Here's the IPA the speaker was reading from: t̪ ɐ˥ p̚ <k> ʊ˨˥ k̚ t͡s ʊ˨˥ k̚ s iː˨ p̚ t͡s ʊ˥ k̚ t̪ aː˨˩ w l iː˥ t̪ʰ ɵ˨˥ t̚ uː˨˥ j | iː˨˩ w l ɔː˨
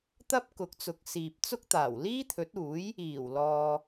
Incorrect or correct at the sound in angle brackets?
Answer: correct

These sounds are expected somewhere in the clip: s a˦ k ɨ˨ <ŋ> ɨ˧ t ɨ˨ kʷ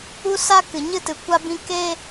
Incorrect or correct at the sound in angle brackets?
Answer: incorrect: ɲ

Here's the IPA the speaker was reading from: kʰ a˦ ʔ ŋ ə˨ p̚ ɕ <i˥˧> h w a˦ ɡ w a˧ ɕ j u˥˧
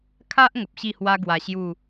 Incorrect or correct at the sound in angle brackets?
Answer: correct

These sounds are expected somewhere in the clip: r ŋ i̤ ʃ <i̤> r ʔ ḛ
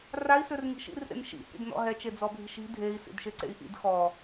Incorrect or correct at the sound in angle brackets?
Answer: incorrect: ḭ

